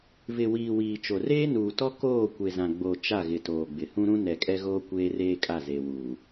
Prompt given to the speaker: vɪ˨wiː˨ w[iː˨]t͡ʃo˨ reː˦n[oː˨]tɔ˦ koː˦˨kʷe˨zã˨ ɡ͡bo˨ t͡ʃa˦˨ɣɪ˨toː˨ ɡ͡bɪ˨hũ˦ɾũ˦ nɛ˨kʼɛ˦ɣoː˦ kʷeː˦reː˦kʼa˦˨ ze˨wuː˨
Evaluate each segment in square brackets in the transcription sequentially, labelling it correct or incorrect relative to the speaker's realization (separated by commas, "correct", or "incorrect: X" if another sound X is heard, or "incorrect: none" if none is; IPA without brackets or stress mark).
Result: correct, incorrect: uː˨